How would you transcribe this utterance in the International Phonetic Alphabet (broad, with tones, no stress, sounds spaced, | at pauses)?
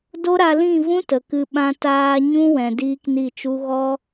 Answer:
d o˦ ɾ a˧ l ĩ˦˨ v ũ˦ t ə˨ k ɨ˧ ɓ ã˧ t aː˧ ɲ ũ˦ w ɛ̃˨ d iː˦ k n i˦˨ t͡ʃ u˦ ɣ ɔ˦